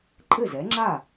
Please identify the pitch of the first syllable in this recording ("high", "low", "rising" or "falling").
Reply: falling